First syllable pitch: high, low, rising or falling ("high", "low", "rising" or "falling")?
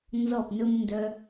falling